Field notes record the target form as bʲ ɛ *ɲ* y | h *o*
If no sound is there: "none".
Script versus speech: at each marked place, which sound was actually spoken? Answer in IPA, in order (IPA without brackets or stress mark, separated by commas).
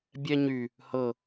ɲ, ɤ